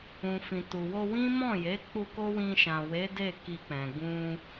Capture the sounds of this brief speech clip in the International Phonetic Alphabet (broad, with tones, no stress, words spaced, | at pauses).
ũ˨ fĩ˨tu˨wo˧ wĩ˦mɔ̃˦˨je˨˦ k͡pu˧ ko˦wĩ˧ʃã˨ we˨˦de˦˨ ki˧k͡pɛ̃˨ ɡũ˧